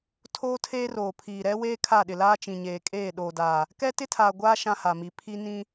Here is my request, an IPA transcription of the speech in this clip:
tʰ oː˦ tʰ eː˦ r oː˨ pʰ iː˨ ɾ ɛ˦ w eː˦ kʰ a˦˨ ɗ ɪ˨ l aː˦ t͡ʃ ĩ˨ ɲ eː˨ kʼ eː˦˨ ɗ oː˨ d aː˨ | k ɛ˦ t ɪ˦ tʰ aː˨ ɡʷ aː˦ ʃ ã˦ h a˨ m i˨˦ pʰ i˦ n ĩ˦

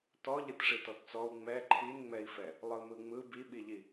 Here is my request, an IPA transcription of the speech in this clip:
t ɔ ʎ ɨ t ʂ i t ɔ t t͡s ɔ u̯ ŋ͡m ɛ ǃʰ i n ŋ͡m ɛ i̯ f ɛ | lˠ ɯ m ɯ ŋ͡m ɯ b i ɓ i ʎ i

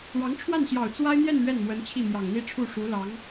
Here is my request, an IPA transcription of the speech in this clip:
ɻ ɑ˧˥ ŋ ʈ͡ʂʰ w a˥˩ n ɕ j ɑ˨˩ ʊ̯ t͡s w a˥ ɪ̯ n̪ j ɛ˥˧ n ɥ ɛ˥˩ n m w ə˧˥ n t͡ɕʰ i˥˩ m j ɑ˨˩ ŋ n̪ i˥˧ ʈ͡ʂʰ u˥˩ ʂ u˧˥ l ɑ˧˥ ŋ

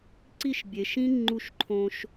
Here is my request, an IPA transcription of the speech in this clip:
ǀ i˦˨ ʃ bʲ e˨ ʃ ĩ˦ ŋ͡ǃ u˦˨ ʃ ǃʰ õ˦ ʃ

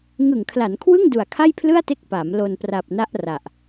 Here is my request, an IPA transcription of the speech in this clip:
ŋ ɯ˨˩ ŋ kʰ l a˩˦ n kʰ w ɯ˥˩ ŋ d u˨˩ a̯ kʰ a˥˩ j pʰ l ɯ˥˩ a̯ t e˦˥ k̚ p a˩˦ m l o˨˩ n p r a˨˩ p̚ n a˦˥ ʔ r a˨˩ ʔ

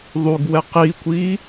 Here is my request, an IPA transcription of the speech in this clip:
ðˤ u ɡ w ɛ q i kʷ i

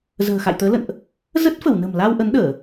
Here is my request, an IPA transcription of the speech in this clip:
z ə̤ː˨˩ x a̰˧˨ j t̪ əː˨˦ l ə̰˧˨ n ʔ | z ə˦˥ t̚ f ə˧˩ w n ə̤˨˩ m l a˧ w ʔ ə˨˦ n ɗ əː˧˩˨

